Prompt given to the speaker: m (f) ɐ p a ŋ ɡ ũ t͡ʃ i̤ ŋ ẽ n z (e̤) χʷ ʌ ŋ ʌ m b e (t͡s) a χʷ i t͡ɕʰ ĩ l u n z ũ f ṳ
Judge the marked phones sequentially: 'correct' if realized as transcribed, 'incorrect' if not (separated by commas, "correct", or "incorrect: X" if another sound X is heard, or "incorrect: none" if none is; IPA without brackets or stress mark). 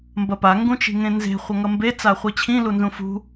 incorrect: b, correct, correct